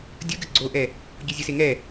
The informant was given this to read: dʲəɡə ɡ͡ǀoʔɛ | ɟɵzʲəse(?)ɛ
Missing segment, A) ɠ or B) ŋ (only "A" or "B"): B